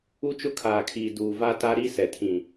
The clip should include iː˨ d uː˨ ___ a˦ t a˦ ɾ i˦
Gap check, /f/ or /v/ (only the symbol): v